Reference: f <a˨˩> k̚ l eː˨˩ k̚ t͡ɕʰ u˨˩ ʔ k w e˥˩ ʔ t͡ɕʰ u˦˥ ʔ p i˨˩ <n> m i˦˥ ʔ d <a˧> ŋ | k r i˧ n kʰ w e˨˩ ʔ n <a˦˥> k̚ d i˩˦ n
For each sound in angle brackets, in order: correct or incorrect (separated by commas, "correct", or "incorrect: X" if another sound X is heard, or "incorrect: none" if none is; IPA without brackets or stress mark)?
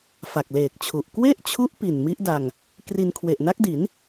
correct, correct, correct, correct